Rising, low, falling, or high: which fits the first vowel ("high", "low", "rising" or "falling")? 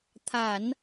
low